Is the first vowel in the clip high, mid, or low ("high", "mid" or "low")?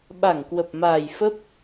low